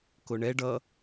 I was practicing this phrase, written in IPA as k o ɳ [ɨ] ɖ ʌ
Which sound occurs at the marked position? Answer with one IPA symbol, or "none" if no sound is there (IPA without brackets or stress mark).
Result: ɛ